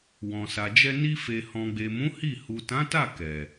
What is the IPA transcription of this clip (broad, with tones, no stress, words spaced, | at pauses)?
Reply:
wɔ̃˨sa˨d͡ʒɛ˧ ni˧fe˨ hɔ̃˨ɡ͡be˨mũ˨˦ hi˦˨ hu˨tã˨˦ta˦˨ kɛ˨